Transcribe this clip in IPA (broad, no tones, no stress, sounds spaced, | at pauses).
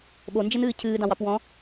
ɓ o n d͡ʒ ɘ n ɨː cʰ ɨː d ɑ̃ w ɑ p w ɔ̃